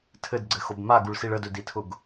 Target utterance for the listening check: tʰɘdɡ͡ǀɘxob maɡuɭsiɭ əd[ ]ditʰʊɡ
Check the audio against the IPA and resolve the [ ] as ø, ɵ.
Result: ɵ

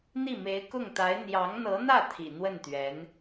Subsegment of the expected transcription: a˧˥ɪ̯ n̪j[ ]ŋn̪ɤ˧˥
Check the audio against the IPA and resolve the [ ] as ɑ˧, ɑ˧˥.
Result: ɑ˧˥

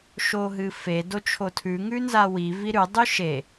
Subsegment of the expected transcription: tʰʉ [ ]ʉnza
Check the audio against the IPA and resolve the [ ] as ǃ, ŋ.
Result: ŋ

